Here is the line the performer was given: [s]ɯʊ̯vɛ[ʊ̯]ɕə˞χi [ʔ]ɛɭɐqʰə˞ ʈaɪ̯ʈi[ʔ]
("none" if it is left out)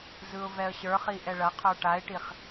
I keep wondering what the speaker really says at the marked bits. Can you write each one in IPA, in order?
z, ə̯, ʔ, χ

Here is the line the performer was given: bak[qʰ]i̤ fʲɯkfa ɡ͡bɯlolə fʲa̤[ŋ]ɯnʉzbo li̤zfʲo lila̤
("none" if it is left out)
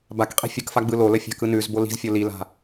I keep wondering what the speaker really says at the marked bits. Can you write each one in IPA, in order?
qʼ, k

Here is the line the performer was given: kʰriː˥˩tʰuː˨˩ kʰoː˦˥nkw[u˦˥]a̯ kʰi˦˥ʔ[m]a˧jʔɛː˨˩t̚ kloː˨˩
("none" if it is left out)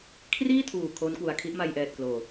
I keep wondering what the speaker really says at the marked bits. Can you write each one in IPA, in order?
u˩˦, m

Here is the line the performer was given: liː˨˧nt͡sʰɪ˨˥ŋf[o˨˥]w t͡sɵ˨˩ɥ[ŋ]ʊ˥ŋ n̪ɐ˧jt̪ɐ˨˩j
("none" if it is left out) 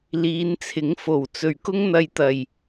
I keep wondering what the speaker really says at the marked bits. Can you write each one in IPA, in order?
o˨˩, k

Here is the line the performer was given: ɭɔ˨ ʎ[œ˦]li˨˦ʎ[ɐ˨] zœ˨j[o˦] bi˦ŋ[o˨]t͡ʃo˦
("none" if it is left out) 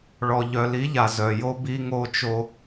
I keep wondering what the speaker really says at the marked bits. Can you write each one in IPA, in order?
œ˨, a˨, o˦, o˦

